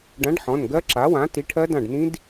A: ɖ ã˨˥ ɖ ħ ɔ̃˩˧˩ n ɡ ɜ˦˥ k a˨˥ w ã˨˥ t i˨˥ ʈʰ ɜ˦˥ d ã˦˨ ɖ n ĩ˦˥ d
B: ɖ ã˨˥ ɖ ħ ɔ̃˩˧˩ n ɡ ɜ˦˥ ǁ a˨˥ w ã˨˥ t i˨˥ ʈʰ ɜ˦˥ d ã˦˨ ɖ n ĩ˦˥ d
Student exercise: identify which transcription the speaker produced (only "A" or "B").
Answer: B